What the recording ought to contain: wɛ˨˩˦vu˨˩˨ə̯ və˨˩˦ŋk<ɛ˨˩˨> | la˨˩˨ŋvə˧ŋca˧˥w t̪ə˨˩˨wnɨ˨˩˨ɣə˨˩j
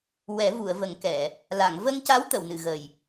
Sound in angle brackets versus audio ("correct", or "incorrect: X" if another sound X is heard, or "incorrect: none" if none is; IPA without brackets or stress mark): correct